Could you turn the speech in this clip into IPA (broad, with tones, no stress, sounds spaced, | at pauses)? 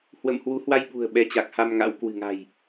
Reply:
h w ə̰˧˨ m h w u˨˦ h w a˧ j ɓ ṳ˨˩ ə̯ ɓ ɛ˨˦ t͡ɕ a˨˩ k̚ h a˧ m ŋ a̰˧˥ w k w ɨ̤˨˩ ŋ a̤˨˩ j